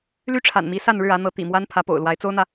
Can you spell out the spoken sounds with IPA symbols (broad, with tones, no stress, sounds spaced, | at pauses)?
l y˥ ʈ͡ʂʰ a̰˨˩ n m i˧˥ s a˥˧ n ɻ ɻ̩˥˩ ä˧˥ n̪ ɤ˧˥ t̪ ḭ˨˩ m w a˥ n pʰ ä˧˥ p o̰˨˩ ʊ̯ l w a˧˥ ɪ̯ t͡s o˥ ʊ̯ n̪ ä˨